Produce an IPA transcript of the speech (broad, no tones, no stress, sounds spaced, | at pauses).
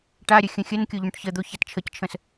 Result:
ʈ a ɾʲ ə xʲ ə̃ xʲ ə n kʲ o ʎ õ ʈ ç ə d̪ o ç a t t͡ʃʰ ə c t͡ʃʰ ə̃ s